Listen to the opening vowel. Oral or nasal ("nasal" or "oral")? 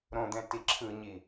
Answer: nasal